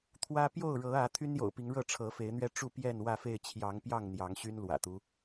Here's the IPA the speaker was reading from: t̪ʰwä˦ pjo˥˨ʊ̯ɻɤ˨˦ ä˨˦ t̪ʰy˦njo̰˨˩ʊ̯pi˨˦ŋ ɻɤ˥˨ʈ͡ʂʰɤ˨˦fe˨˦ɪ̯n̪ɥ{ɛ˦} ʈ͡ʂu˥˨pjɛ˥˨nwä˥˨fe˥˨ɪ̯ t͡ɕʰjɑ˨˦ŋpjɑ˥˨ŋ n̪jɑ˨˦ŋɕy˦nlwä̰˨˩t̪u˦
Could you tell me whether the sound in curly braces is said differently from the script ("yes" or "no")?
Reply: no